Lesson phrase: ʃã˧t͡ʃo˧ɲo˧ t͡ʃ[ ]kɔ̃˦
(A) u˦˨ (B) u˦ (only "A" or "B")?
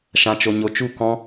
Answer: A